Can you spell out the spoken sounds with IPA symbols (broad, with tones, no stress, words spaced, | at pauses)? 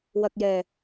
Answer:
wɐ˨k̚jɛː˨˩